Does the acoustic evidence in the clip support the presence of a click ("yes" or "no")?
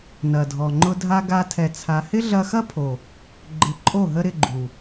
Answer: yes